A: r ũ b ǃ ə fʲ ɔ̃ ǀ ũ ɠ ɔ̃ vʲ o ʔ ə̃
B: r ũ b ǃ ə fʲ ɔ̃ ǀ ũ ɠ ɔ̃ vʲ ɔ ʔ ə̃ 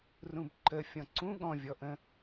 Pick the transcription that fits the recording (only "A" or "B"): B